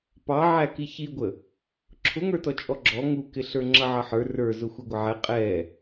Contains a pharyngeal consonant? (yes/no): yes